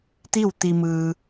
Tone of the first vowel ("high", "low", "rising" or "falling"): falling